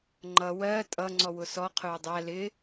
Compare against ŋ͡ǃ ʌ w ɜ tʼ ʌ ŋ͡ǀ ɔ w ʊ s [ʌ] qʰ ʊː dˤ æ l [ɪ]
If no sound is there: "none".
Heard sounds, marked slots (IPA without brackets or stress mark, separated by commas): ɔ, ɪ